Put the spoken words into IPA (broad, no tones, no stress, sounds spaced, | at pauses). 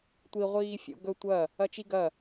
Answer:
tʷ i ʁʷ iː fʲ o̰ ɡ ɵ tʷ ɐ | ɐ t͡ʃ i ɡ ɐ